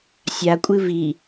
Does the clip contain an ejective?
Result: yes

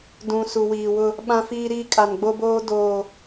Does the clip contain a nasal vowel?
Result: yes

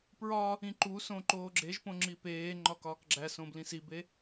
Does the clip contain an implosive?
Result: no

